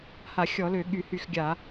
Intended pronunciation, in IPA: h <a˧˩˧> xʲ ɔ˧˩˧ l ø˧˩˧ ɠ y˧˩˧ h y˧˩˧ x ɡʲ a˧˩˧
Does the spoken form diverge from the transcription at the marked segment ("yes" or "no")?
no